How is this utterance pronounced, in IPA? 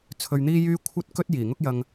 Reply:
t͡sʰ ɵ˧ ɥ n̪ iː˥ j yː˥ kʷʰ ɐ˥ t̚ k ɵ˥ t̚ j iː˨˩ ŋ ʊ˥ k̚ j ɐ˧ ŋ

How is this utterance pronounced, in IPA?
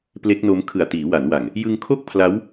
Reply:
p l e˦˥ k̚ n o˦˥ m kʰ ɯ˨˩ a̯ t iː˩˦ w a˩˦ n w a˨˩ ŋ | j ɯ˧ ŋ kʰ o˥˩ k̚ pʰ l a˦˥ w

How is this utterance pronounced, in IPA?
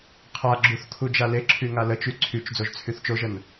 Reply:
qʰ a ɡ͡ǁ u θ kʰ u d͡ʒ a l e ǁʰ y ŋ a l ə t͡ʃ y ǀʰ y t͡ʃ d͡z o ʒ t͡sʰ y θ t͡ʃ o ʒ ə n

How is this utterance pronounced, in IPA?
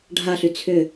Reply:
ɖʱ a ɬ y t͡sʰ ʏ

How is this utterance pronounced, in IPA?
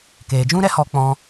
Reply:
k eː˨ d͡ʒ ũ˦ ɾ ɛ˦ h ɔ˧ k͡p ɔ̃˧

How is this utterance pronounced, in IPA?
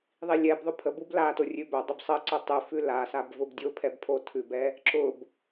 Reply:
ðˤ i lʲ ɛ b ðˤ ʊ pʰ ə b u b l a t o rʲ ʉ b œ dˤ ʏ b sˤ ə ǀ ʊ tˤ ʉ f ʉ l a s a b v ʊ b dʲ ʊ pʰ ɛ b pʰ o tʰ ʉ b ɛ | ǁ ʊ b

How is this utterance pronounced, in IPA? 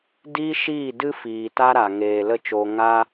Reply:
d iː˦ ʃ iː˦˨ d ɨ˦ f iː˨ t a˦ ɾ a˨ ŋ eː˨ l ə˦˨ t͡ʃ oː˧ ŋ a˦

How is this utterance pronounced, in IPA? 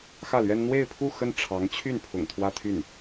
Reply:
x ä˥˩ l ɥ ɛ˥ n n̪ w e˥˧ ɪ̯ pʰ u˥˧ x ə˥˩ n ʈ͡ʂʰ ɑ˧˥ ŋ t͡ɕʰ y˥˩ n pʰ ʊ̰˨˩ ŋ t̪ʰ w ä˥ t̪ʰ y˥˩ n

